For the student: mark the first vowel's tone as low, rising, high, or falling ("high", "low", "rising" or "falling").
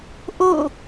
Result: falling